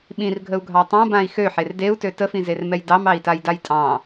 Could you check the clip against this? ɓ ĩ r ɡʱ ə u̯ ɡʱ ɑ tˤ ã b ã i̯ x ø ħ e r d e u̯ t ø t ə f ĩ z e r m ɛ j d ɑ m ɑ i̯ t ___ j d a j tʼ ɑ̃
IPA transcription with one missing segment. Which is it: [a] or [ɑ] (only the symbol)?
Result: a